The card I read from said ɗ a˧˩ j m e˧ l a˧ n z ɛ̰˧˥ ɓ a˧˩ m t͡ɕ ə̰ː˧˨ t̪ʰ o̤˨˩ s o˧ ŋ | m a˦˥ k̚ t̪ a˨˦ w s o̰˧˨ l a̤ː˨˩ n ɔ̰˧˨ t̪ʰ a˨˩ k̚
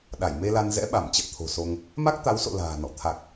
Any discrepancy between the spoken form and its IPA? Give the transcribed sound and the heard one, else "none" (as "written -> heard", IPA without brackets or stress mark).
none